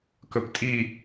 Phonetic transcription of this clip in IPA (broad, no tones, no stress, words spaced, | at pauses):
kɵptʼi